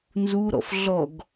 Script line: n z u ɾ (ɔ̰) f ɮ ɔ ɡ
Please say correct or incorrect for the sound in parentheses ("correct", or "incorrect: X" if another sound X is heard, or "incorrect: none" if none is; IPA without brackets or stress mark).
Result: correct